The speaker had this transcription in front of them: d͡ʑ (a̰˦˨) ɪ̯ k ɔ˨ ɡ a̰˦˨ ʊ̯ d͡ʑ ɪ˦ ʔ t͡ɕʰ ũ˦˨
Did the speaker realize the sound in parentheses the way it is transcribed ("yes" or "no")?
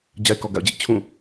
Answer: no